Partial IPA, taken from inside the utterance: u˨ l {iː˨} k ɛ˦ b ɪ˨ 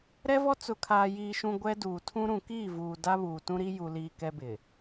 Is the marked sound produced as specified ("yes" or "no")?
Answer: yes